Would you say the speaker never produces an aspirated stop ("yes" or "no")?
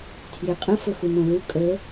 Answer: no